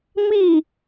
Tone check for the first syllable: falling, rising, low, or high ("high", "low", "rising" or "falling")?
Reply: falling